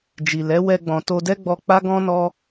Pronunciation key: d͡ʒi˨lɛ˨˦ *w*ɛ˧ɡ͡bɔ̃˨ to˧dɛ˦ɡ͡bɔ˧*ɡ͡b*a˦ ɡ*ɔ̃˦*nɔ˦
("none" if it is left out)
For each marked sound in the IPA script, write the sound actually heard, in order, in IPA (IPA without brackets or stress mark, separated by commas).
w, k͡p, ɔ̃˦